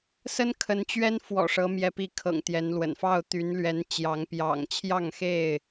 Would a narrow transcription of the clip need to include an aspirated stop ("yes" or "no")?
yes